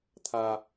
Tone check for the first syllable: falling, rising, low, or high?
high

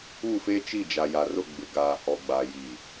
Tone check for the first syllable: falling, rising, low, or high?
falling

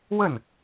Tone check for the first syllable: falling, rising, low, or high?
falling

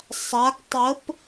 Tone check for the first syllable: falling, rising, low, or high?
rising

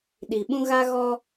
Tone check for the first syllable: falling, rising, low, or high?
low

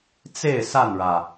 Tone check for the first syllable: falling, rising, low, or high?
falling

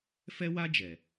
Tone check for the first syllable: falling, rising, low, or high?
high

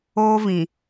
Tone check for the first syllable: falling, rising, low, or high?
high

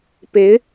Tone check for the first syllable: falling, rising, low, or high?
rising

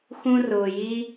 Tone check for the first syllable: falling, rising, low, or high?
high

